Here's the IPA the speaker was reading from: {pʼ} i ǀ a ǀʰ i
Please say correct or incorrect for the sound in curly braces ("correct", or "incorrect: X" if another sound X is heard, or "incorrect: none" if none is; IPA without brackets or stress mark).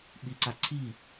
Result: incorrect: ɓ